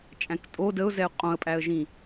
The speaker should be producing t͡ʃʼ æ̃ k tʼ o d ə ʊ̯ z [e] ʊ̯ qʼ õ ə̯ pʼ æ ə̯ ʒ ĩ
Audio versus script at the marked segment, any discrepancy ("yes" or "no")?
yes